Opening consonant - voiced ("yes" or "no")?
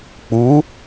no